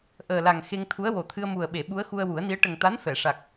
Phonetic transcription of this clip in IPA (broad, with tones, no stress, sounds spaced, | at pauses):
ʔ əː˨˩ l a˨˩ ŋ x e˧ ŋ t̪ʰ u˧˥ ə̯ w o˨˩ t̪ʰ ɨ˧ ə̯ m u˨˩ ə̯ ɓ e˨˩˨ ɓ u˧˥ ə̯ x u˧ ə̯ w u˨˩˦ ə̯ n i˧˥ ə̯ ʈ ə˨˩ ŋ t̪ a˧˥ n f ɛ˨˩˨ ʂ a˨˩ k̚